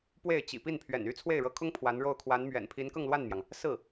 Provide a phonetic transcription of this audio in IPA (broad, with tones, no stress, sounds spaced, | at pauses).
p w e˥˩ ɪ̯ t͡ɕ ḭ˨˩ p i˥˩ n pʰ ɥ ɛ̰˨˩ n y˥ t͡sʰ w e˥˩ ɪ̯ ɻ ɤ˧˥ kʰ ʊ˥ ŋ pʰ w a˧˥ n ɻ o˥˩ ʊ̯ kʰ w a˧˥ n m ɥ ɛ̰˨˩ n pʰ i˧˥ n k ɤ˥˧ ŋ l w a˥˩ n m j ɑ˩ ŋ | s ɹ̩˥˩